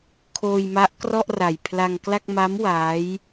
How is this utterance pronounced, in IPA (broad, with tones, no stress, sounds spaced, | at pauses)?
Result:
kʰ oː˧ j m a˦˥ ʔ k r ɔ˥˩ ʔ r a˨˩ j pʰ l a˧ ŋ k l a˥˩ k̚ m a˦˥ m w a˦˥ j